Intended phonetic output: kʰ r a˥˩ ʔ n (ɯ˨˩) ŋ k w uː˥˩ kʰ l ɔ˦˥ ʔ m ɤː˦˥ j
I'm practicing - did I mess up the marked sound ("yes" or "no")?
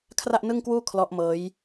yes